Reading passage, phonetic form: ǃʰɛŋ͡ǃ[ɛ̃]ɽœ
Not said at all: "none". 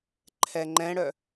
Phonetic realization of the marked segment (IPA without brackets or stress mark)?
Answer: ɛ̃